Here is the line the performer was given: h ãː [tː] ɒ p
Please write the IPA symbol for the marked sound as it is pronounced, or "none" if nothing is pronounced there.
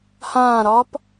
ɾ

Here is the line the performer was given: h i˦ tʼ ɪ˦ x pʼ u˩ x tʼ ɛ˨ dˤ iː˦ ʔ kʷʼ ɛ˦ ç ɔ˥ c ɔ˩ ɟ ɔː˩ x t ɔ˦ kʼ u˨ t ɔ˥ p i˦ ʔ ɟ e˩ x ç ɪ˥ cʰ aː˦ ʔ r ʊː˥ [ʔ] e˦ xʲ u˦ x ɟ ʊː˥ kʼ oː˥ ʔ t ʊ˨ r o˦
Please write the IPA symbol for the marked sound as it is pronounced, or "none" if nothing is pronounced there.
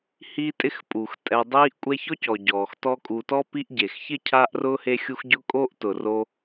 h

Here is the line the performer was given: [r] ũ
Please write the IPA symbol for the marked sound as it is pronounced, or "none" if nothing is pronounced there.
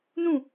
n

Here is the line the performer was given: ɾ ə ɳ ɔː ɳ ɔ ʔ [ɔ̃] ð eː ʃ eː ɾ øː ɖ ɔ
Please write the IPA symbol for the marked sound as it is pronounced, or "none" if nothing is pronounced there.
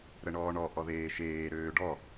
ɔ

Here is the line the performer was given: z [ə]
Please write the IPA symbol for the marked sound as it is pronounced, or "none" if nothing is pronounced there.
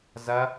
ɐ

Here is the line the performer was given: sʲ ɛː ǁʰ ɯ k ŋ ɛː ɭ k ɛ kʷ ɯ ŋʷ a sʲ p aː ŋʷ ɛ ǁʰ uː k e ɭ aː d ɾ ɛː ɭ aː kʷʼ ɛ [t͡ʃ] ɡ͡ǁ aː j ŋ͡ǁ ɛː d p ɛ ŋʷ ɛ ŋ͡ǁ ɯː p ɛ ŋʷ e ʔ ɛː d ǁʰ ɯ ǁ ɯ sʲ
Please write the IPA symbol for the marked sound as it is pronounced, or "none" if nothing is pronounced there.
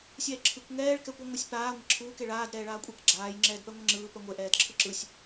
k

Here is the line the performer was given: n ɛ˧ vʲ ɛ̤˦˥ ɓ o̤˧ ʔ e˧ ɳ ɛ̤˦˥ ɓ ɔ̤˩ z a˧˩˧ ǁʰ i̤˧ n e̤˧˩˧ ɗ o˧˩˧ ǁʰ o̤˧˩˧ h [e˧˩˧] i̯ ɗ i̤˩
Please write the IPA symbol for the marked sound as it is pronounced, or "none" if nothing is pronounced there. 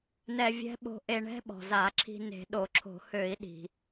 ø˧˩˧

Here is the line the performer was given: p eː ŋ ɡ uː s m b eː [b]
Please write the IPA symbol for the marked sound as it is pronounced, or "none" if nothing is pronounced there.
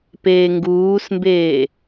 none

